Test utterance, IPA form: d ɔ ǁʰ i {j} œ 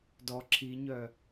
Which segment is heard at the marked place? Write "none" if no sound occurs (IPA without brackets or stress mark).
ɲ